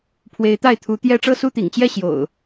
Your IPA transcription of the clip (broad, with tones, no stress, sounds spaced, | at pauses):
pʰ w e˨˦ ɪ̯ t̪ a˥˨ ɪ̯ t̪ʰ u˨˦ t̪ j ɛ˥˨ ʈ͡ʂ ɤ˥˨ s u˥˨ t̪ ḭ˨˩ ŋ t͡ɕ j ɛ˥˨ ɕ j o̰˨˩ ʊ̯